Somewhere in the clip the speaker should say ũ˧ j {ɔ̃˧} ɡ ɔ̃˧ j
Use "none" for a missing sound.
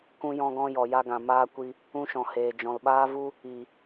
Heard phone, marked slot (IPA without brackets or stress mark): ɔ̃˧